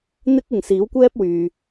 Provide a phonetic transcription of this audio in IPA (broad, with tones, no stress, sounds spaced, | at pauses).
n̪ ɪ˥ k̚ ɪ˨ ŋ s iː˨˥ w kʷ ɛː˥ p̚ w yː˨